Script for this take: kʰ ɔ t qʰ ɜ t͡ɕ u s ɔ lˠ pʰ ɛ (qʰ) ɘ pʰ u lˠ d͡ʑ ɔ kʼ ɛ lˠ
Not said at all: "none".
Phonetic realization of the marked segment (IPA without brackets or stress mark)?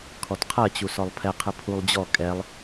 qʰ